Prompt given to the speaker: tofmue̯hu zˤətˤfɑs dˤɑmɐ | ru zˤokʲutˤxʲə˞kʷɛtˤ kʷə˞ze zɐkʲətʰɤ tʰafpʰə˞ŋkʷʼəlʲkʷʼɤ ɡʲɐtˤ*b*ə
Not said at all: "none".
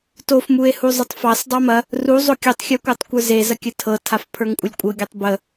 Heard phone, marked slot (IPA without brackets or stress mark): b